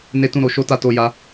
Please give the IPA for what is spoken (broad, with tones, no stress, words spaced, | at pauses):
ne˦tũ˦ ɾo˧ʃo˦ta˦ to˦ja˦